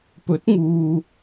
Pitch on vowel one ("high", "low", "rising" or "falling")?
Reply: rising